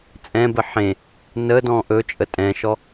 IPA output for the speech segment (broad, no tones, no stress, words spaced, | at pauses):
t͡sʼɛ̃bə ħẽ | nədɔ̃ ʔɵt͡ʃʼə tʼɛ̃ʃɔ